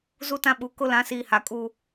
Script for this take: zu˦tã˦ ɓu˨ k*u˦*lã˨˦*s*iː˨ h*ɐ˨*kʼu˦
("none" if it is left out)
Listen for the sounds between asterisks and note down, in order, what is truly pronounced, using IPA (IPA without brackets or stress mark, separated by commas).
ʊ˦, s, a˨